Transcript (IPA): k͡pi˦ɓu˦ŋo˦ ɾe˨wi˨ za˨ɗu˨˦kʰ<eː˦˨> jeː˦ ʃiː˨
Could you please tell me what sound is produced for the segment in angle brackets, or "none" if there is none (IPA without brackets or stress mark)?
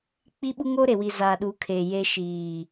eː˨